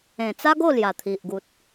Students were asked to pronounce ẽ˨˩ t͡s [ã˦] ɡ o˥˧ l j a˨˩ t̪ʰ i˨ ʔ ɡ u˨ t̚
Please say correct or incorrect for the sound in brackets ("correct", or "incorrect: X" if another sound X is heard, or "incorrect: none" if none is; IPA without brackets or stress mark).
incorrect: a˦